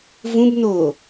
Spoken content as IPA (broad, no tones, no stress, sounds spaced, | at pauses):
v ũ b n oː